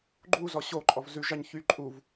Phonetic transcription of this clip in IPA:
ɡ͡ǃ u z ɔ ɕ o ǃʼ ɔ v z ʉ ʒ ɑ ɲ ç y ǃʼ u v

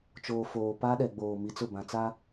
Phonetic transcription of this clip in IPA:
t͡ʃ oː˨ f oː˨ p a˦ ɗ ɛ˨ ɡ͡b oː˨ m i˨ t͡s ʊ˦˨ b ã˨ t͡s a˦

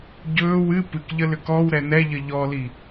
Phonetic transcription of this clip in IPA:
ɟ ɵː w ɨ p ɨ k ʎ ə l ʏ k ɔ w ɾ ɛ n ɛ ʎ ə ʎ ɔ l i

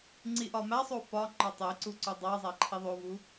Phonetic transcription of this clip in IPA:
ŋ͡ǀ i ʔ ɒ m æ sˤ o f ɒ ŋ͡ǃ ɒ tˤ e ǀ u ǀ o dˤ æ zˤ æ ǃʰ i ðˤ o v u

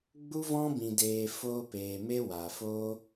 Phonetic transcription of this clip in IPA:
ɡ͡b u˦ v ɔ̃˦ b ĩ˨ d eː˨ f oː˧ p eː˨ m e˦ w a˨ f oː˦

